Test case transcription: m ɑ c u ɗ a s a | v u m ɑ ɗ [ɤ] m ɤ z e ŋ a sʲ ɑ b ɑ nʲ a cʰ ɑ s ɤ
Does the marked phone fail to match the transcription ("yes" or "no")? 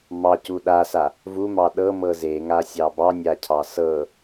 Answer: no